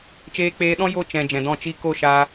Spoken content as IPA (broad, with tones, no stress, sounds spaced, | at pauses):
t͡ʃ eː˧ k͡p eː˧ ɗ ɔ̃˦ j o˦˨ t͡ʃ ɛ̃˨ d͡ʒ ɛ̃˨ d ɔ̃˦˨ t͡ʃ i˧ k o˦˨ ʃ aː˧